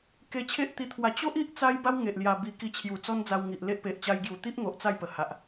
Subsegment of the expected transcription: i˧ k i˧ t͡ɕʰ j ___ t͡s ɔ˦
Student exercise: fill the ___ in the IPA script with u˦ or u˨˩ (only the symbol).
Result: u˨˩